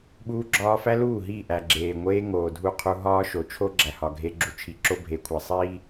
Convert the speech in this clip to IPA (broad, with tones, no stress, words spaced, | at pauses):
ɓuː˦ɡ͡ǁɒː˦ fæ˦luː˦˨ɦiː˦˨ ʔæ˨ɡ͡ǁeː˨ ŋʷeː˦ŋoː˨ dʱu˦˨qʰu˦ ɦɒː˦ʃo˨ t͡ʃʰo˦ɡ͡ǁæ˨hɒ˨ ɡʱe˦ɡ͡ǁu˦ t͡ʃʰi˨˦ǁo˦bʱe˨˦kʷʰæ˨ sˤiː˦